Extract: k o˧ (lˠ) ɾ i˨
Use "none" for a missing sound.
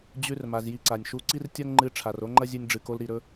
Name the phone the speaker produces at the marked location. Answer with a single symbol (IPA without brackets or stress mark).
l